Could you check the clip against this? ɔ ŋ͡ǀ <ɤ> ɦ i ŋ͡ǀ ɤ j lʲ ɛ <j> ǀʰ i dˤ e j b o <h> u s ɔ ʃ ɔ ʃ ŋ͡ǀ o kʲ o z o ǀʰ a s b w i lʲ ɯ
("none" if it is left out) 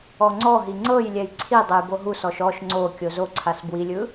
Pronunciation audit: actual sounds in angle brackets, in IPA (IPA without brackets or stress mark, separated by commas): ɔ, j, ɦ